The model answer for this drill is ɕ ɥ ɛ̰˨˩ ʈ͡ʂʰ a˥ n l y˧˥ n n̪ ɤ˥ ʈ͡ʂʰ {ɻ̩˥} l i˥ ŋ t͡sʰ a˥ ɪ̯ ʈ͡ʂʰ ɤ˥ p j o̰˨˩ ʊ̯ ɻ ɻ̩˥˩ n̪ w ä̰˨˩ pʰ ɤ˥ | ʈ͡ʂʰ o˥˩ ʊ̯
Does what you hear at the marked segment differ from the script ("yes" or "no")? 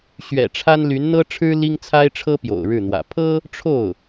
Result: no